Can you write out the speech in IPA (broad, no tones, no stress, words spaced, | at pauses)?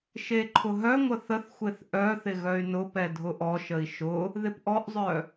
ʃeǃʰʊɦœŋʷə θəθxʷeθ ʔœθɪ ɣœy̯nʊpɛ dʱʊʔɔʃəi̯ ʃʊ | ðɪpʔɔʔzˤœ